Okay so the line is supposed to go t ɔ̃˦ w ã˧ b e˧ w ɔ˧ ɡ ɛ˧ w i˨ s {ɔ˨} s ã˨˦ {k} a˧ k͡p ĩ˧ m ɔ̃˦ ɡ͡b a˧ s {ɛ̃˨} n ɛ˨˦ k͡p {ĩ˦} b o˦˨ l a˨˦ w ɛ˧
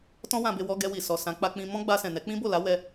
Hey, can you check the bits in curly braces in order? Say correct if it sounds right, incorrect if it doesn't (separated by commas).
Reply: correct, incorrect, correct, correct